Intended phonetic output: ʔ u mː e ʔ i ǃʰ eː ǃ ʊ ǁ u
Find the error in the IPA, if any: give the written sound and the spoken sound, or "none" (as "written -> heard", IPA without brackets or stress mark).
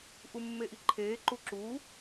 ʊ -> u